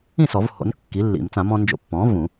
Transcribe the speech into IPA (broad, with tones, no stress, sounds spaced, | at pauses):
ĩ˥˩ s ɔ˨˩˦ v h o̰˩˥ n kː i˩˥ lː ḭ˨˩˦ m t͡s ã˨˩˦ m ɔ̃˧ n d͡ʒ o̰˧ pː ɔ̃ː˩˥ v ũ˨˩˦